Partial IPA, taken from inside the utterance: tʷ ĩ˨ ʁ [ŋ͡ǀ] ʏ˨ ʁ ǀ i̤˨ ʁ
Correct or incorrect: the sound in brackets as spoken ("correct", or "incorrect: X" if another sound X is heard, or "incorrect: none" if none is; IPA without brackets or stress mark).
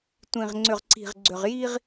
correct